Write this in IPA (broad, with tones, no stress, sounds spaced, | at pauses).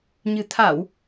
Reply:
ɲ ɨ̤˨˩ t̪ʰ a˧˩˨ w